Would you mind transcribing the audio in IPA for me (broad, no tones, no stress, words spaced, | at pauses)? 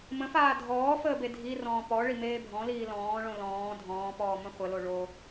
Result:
mə̃faː dʱɔːfəː bedʱirɔ̃ː pɔ ɭimeːbʱɔ̃liː lɔ̃ːɭõ lɔ̃ː dʱɔ̃ːpɔː mə̃χʷəlo ɭo